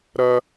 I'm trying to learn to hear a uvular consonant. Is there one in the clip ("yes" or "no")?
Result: no